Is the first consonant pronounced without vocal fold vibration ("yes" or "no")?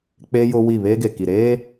yes